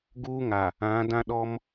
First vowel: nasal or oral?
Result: oral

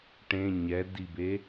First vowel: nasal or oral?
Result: nasal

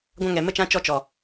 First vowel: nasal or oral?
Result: nasal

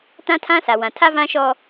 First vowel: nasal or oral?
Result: nasal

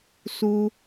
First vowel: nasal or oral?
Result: oral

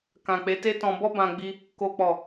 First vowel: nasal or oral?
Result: nasal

